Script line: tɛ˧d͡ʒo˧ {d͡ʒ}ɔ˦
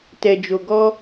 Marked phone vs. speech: incorrect: ɡ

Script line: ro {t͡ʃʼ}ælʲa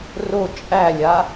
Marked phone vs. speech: correct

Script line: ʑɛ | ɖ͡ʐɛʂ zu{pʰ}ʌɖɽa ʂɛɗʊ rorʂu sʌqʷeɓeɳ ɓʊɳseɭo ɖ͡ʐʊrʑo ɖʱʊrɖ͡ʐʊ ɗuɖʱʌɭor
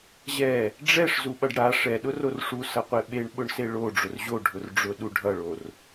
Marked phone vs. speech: incorrect: ɓ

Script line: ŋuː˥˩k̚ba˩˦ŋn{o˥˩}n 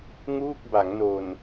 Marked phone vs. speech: incorrect: o˨˩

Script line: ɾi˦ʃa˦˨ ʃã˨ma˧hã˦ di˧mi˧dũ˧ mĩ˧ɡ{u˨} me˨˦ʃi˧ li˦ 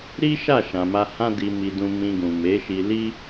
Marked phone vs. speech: incorrect: ũ˨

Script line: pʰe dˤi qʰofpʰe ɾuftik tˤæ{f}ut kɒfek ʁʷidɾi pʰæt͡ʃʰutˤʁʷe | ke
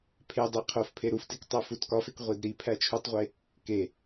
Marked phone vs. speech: correct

